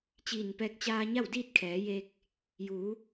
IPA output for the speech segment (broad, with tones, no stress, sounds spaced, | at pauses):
t͡ɕ iː˧˩ n p ɛː˧ k̚ t͡ɕ aː˧ ɲ a˥˨ w d iː˥˨ t̚ kʰ ɛː˩˧ j eː˧ k̚ | j uː˩˧